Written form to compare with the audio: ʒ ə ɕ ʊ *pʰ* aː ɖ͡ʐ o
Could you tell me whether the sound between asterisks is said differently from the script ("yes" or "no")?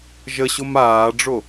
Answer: yes